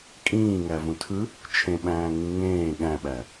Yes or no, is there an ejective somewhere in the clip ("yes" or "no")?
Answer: yes